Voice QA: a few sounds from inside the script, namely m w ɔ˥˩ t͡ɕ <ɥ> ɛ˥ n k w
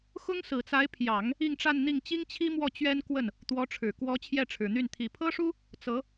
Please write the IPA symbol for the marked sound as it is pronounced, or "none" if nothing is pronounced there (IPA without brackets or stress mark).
ɥ